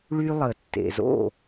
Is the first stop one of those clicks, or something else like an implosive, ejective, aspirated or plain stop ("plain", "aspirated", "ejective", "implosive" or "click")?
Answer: plain